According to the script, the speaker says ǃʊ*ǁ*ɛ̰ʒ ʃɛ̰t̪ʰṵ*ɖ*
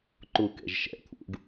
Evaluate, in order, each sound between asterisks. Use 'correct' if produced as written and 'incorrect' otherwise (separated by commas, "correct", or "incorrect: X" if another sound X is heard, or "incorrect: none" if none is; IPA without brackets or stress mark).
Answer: incorrect: k, correct